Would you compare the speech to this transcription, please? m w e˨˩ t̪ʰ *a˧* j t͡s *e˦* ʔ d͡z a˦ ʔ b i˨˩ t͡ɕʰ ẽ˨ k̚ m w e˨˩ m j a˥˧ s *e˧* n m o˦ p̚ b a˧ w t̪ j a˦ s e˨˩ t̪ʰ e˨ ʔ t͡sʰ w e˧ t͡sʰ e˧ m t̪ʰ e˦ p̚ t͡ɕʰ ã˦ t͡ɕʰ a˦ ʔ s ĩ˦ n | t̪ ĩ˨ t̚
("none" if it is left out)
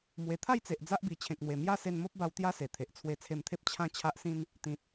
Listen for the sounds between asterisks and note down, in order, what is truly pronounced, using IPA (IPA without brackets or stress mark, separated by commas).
a˥˧, e˨, e˧